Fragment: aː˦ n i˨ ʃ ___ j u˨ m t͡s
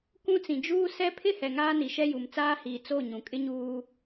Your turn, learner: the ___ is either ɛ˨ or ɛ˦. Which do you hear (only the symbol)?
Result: ɛ˦